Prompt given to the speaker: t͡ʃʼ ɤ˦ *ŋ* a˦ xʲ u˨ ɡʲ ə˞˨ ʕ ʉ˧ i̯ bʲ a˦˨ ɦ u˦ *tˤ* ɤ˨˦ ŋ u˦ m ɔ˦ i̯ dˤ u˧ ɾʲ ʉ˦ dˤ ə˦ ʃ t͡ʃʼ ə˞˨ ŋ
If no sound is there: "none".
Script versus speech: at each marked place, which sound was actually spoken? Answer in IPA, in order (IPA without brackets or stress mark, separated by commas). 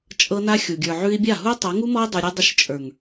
n, tˤ